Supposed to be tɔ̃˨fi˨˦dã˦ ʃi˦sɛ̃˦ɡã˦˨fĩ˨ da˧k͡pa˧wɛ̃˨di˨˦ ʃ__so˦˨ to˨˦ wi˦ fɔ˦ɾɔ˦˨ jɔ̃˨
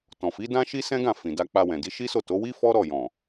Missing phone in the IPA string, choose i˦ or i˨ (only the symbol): i˦